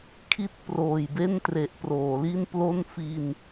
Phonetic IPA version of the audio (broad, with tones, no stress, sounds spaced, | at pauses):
kʰ i˥˩ t̚ p r oː˨˩ j b e˥˩ n t r e˨˩ ʔ p r oː˩˦ l i˥˩ n p l o˥˩ n f i˧ n